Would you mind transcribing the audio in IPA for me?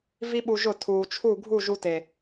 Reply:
v i˦ ɓ u˧ ʒ ʊ˦˨ tʰ uː˨ t͡ʃʰ u˦˨ ɡʱ u˦˨ ʒ u˧ t e˨

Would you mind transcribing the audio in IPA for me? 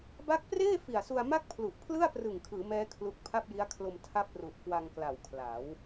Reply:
b a˦˥ k̚ p r eː˥˩ f i˨˩ a̯ s u˧ a̯ m a˥˩ k̚ pʰ l u˨˩ ʔ pʰ l ɯ˥˩ a̯ p r ɯ˨˩ ŋ kʰ ɯː˩˦ m ɛː˦˥ kʰ l u˦˥ k̚ pʰ a˥˩ p̚ j i˦˥ a̯ kʰ l o˧ m tʰ a˦˥ p̚ r u˨˩ ʔ k w a˧ ŋ k l a˨˩ w kʰ l a˩˦ w

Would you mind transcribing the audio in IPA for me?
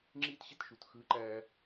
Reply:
ŋ͡ǁ iː˥ t ɕ e˥ t ʃ u˩ t x ɯː˧ ǃ æː˧

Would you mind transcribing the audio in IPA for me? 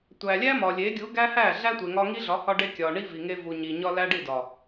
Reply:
tʷ æ˨ lʲ æ˦ m ɒ˨ lʲ e˨˦ ɡʲ u˨˦ ɡ æ˦ h æ˦˨ ɮ æ˦ tʷ e˨ ŋ ɒ˧ ŋ i˦ ɮ ɒ˨˦ h ɒ˧ ɖ e˧ kʲ ɒ˨ ɳ i˦ v i˨ ŋ e˧ v u˨ ɲ i˨ ɲ ɒ˧ l æ˦ ɖ i˦˨ d ɒ˨

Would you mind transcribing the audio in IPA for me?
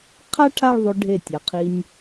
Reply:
qʰ a˥ ʈʰ a˥˧ ɭ ðˤ o˧ ɖʱ e˧˩ tʲ a˩˧ qʰ i˧ nʲ

